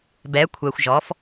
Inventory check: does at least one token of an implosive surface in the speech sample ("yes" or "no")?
no